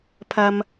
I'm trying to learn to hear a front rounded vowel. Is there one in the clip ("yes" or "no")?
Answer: no